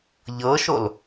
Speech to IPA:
ʎ ɤ ʃ o l

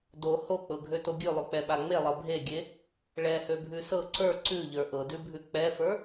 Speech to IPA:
d o h o k͡p ɤ ɡʱ ø t o ɡʲ ʉ lˠ ʉ k͡p ɛ ɓ a ŋ͡m e lˠ ɤ bʱ e ɡʲ e | ɭ ɛ h ø bʱ ʉ s ɤ ǀ ə˞ ǀ ʉ ʎ ə˞ ʔ ɤ d ʉ bʱ ʉ k͡p ɛ f ə˞

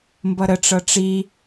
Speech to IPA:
m b ʌ ɾ ə ʈ͡ʂ ɤ ʈ͡ʂ i

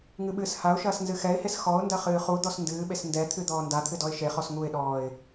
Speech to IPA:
ŋ ɨ ɓ ɨː s h a ʊ̯ ʃ ɐː s n z ɨ x ɛ ɪ̯ h e s x ɔ ʊ̯ n d ɐ χ ɨː χ u d̪ ɔ s n d ɨː ɓ e s n d ɛ t̪ʰ ɨ d̪ ɔː n d a t̪ʰ ɨ d ɔ ɪ̯ ʃ e χ ɔ s ŋ u ɪ̯ ɗ ɔː ɪ̯

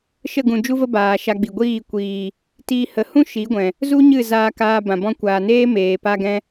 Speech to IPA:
ʃ ə˦˨ ɡ ũ˨ d͡ʒ u˦ v ə˦ b aː˨ ʃ a˧ ɡ͡b i˨ ɡʷ iː˦˨ kʷ iː˨ | t iː˧ h ə˨˦ h ũ˦ ʃ i˨˦ ɡʷ ɛ̃˨ | z u˦ ɲ ɨ˦˨ z aː˧ k aː˧ b ã˨ b ɔ̃˧ kʷ aː˨ n eː˦ m eː˨ p a˧ ɡ ɛ̃˧

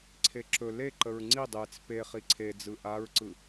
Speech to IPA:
ǀʰ e ǁ ɵ l e ǃ ə ɹ ŋ͡ǀ i dˤ e t͡s p e χ i ǀʰ e d͡z ɯ ʔ a ɹ ǀ ɯ

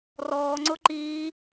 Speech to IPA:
r ɔː ŋ͡ǀ ʊ ǃ iː

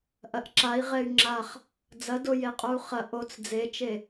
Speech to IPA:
ʔ ɐ ʔ ǁ a i̯ ʁ ɛ y̯ ŋ͡ǁ a χ | d͡z ɐ d o j e qʼ o u̯ χ ɐ ʔ o t͡s d͡z e t͡ʃ e

